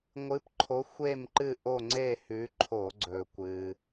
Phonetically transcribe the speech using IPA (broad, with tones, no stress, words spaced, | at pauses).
ŋʷɨ˨˦pǃʰo˨˦ xʷe˦˨mǃɨ˦˨ ʔo˦˨ŋ͡ǀe˦˨hʉ˨˦ǃʰo˧˩˧ ɡ͡ǀɵ˩kʷɨ˩